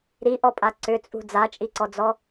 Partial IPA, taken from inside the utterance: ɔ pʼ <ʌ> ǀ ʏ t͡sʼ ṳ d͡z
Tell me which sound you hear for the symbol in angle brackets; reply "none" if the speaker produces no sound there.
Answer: a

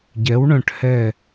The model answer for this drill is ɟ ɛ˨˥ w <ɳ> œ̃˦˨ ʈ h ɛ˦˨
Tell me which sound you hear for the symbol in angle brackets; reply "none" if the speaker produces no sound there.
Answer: ɳ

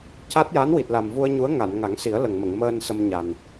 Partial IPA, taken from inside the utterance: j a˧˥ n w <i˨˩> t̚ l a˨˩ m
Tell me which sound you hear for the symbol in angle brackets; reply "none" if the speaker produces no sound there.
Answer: i˨˩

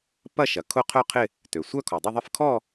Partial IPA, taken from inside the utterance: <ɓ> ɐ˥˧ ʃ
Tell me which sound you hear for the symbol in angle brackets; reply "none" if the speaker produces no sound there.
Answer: p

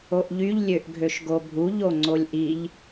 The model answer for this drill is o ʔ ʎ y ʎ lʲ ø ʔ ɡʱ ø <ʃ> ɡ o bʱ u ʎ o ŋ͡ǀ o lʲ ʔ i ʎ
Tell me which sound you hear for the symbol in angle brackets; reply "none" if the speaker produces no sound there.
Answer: ʃ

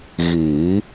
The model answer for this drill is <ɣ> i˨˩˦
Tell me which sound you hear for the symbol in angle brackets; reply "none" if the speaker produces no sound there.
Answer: ɣ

